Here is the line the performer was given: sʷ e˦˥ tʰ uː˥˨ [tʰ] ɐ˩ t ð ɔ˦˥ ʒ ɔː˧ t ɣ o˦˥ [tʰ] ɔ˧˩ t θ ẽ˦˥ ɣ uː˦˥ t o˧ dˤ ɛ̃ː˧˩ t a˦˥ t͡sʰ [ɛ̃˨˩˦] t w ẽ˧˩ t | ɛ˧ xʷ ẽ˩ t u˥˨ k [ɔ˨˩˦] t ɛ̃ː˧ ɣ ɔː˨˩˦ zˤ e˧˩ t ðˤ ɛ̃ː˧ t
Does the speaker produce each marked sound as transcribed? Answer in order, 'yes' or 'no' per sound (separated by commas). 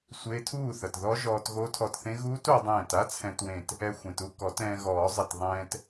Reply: no, yes, no, yes